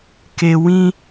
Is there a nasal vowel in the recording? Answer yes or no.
yes